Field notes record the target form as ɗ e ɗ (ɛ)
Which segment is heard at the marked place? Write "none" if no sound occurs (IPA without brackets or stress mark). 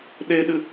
ɨ